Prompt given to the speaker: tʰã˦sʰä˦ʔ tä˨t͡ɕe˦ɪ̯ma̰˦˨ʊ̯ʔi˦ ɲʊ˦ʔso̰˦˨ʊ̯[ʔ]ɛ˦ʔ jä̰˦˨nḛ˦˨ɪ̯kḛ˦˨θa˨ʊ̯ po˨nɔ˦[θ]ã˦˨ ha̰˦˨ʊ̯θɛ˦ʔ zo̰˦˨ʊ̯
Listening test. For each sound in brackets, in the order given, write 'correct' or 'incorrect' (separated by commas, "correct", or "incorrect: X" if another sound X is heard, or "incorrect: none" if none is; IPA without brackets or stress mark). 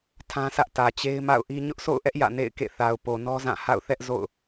correct, incorrect: z